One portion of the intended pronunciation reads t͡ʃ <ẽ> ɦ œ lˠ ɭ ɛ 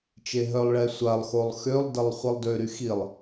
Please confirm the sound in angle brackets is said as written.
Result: no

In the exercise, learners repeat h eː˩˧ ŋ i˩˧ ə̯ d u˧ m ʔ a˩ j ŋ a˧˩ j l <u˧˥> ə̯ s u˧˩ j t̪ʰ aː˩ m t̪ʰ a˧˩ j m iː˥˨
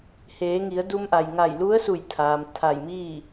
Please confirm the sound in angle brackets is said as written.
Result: yes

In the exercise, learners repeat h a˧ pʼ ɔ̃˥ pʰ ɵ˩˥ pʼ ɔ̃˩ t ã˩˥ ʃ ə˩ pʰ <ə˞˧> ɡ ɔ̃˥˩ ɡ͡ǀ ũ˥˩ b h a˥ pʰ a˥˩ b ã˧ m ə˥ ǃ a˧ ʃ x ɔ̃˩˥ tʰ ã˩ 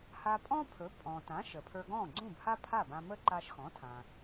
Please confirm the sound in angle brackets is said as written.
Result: yes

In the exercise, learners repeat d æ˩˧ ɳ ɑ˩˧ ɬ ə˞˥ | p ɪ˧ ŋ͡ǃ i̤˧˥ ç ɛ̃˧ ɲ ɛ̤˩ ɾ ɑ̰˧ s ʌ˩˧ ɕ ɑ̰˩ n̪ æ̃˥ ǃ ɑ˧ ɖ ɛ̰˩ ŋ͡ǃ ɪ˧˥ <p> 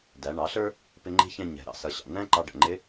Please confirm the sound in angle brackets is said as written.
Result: no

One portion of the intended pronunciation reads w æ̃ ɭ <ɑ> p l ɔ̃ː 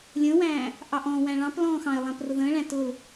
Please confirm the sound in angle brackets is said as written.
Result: no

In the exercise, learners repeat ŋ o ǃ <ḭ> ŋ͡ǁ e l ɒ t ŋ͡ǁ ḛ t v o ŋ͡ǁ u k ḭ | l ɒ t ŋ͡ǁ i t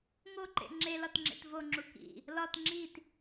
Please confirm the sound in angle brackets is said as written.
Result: no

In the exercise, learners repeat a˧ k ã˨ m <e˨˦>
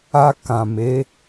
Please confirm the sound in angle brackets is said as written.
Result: yes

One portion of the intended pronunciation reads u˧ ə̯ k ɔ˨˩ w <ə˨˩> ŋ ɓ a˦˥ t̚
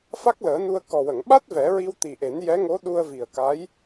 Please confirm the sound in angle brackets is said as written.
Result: no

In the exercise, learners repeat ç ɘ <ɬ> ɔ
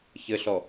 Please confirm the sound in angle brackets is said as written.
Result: yes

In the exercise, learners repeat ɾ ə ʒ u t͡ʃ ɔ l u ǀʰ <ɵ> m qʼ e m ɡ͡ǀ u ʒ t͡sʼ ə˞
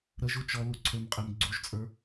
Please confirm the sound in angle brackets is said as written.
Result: yes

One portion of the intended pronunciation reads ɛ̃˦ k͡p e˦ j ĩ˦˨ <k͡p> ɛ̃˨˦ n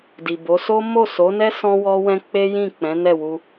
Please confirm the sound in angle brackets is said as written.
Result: yes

